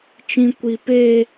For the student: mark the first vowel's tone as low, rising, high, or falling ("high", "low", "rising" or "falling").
high